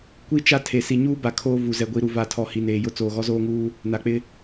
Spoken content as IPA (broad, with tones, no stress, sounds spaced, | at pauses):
kʷ i˦ t͡ʃ a˦ tʰ e˨ s i˨ ɲ uː˦ b a˨ kʰ oː˦ v u˨ z ɛ˨ ɡʷ i˨ ɾ u˨ v a˨ tʰ ɔ˨ h i˨ n eː˨ j ʊ˦ t͡s oː˨ ɣ ɔ˦ z oː˦ ŋ uː˦ | n a˨ k͡p ɪ˦